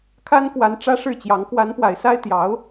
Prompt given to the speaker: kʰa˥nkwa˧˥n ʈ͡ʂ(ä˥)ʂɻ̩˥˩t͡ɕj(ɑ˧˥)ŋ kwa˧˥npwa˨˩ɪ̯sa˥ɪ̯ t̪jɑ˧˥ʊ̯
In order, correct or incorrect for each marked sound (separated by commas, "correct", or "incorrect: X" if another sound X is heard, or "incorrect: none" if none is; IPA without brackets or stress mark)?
correct, correct